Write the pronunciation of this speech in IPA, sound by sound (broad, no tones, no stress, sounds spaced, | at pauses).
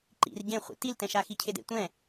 ǃ ḭ r ɟ ẽ χʷ ḭ t i l t ɛ̃ ʃ a x i cʰ e d ḛ tʷ ɛ̃